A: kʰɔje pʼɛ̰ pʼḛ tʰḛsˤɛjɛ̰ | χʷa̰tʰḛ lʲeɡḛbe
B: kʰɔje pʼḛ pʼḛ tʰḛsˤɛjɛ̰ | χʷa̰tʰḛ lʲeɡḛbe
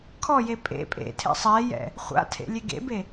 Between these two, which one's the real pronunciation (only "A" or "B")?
B